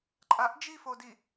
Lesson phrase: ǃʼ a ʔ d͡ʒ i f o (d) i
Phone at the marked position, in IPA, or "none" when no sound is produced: d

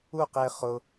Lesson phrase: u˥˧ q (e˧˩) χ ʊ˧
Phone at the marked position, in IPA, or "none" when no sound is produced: e˧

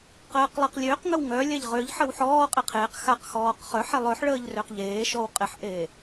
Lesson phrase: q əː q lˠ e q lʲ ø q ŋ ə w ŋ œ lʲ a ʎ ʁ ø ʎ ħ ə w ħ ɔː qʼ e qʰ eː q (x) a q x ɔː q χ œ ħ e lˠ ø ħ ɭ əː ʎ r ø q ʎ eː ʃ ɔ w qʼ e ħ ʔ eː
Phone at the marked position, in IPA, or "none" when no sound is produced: x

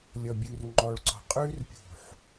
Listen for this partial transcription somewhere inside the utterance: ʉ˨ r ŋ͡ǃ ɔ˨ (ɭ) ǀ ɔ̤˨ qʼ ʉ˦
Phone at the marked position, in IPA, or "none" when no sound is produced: ɭ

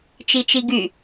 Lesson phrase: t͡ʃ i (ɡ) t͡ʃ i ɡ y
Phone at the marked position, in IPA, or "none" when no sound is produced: none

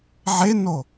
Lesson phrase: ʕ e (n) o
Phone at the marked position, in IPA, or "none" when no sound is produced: n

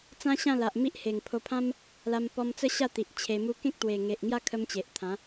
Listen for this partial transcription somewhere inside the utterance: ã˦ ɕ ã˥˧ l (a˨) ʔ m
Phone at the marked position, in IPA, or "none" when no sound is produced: a˨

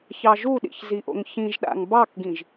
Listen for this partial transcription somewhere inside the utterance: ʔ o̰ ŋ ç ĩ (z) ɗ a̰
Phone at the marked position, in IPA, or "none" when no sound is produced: ʒ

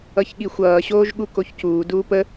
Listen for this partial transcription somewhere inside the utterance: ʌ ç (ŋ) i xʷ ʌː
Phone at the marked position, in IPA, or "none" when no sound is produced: ɠ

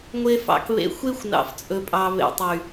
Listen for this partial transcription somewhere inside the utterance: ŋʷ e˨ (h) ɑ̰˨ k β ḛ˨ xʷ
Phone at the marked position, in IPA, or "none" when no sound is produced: f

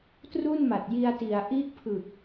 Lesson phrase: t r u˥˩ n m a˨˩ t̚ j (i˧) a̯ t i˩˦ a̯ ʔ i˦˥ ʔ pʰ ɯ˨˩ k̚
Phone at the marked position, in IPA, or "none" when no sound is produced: i˧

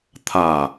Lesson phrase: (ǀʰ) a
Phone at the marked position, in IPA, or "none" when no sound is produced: t̪ʰ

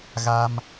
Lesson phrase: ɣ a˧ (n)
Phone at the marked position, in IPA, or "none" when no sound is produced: m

